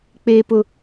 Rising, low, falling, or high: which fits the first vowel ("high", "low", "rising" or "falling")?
high